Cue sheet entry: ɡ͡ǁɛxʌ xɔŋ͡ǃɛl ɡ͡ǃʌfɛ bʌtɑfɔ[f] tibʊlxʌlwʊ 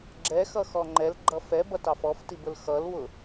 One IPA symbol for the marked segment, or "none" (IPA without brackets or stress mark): f